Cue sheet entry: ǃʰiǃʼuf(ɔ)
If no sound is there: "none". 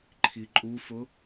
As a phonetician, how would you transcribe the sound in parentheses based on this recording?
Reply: ʊ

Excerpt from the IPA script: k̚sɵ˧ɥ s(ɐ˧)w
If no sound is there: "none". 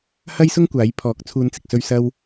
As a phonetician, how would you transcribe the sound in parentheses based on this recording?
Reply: ɐ˧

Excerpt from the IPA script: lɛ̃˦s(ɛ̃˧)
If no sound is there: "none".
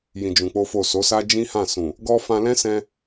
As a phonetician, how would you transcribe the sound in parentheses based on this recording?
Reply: ɛ̃˧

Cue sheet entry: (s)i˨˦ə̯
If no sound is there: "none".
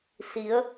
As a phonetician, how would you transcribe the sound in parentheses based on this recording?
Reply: s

